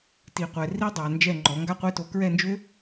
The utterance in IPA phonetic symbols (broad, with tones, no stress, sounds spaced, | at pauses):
t i˨ qʷ ɛ˨ r i˦ dˤ a˨ n d͡ʒ ɛ˦˨ ŋ͡ǃ ɔ˨˦ ŋ ɡ a˦ qʷ e˦ t o˧ k ɹ ɛ˦˨ n d͡ʒ ø˦